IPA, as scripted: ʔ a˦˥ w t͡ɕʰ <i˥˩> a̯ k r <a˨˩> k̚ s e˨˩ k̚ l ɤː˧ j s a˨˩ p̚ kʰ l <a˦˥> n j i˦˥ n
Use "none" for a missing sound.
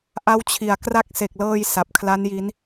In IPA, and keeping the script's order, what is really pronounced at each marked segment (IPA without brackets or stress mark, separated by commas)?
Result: i˩˦, a˦˥, a˦˥